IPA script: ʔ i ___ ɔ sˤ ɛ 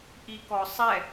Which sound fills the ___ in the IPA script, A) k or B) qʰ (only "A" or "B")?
A